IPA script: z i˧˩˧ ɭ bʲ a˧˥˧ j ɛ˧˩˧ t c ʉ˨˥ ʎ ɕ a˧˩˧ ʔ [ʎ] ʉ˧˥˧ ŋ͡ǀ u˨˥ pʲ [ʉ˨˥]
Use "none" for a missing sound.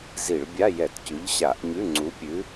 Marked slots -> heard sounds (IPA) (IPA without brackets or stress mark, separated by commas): ɲ, ʉ˨˥